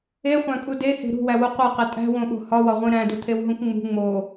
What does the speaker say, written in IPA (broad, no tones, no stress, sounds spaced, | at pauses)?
e χʷ æ̃ kʼ u d e h e̤ ɾ ṳ w æ w u qʷ e q e tʼ æ̤ w õ ɓ o̤ h ɒ w ɒ ʁʷ ĩ ɾ æ̃ d u t̪ʰ e w ɦ ũ k ŋ͡m ṳ ŋ͡m o